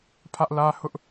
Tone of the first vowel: high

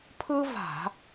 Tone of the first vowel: high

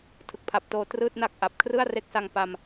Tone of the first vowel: low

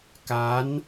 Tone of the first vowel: rising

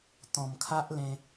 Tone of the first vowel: low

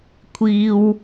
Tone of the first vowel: high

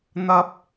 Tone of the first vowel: low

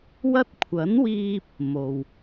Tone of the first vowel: high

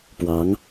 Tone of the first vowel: rising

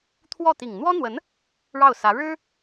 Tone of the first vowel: falling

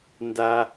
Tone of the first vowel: high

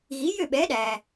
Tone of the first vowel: rising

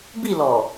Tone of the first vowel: falling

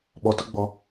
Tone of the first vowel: low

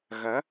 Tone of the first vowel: rising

